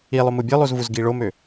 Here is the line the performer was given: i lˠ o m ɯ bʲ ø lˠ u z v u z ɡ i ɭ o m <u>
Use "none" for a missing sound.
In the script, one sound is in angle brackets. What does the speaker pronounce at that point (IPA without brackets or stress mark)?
ø